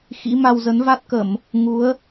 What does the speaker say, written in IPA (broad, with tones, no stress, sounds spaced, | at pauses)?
x ḭ˧˥ m a˧ w z ə˨˦ n v a˦˥ t̚ k ə˧˩˨ m | ŋ u˨˦ ə̯